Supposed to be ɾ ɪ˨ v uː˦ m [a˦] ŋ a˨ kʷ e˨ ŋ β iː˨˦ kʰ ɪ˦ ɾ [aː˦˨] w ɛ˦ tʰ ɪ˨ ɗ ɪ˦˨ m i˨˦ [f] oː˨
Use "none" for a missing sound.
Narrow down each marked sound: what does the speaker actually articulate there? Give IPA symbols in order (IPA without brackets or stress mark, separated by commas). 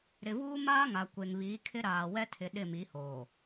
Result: aː˦, aː˨, h